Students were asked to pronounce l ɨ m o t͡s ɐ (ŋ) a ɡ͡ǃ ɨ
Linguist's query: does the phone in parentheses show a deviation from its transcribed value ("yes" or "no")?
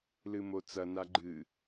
yes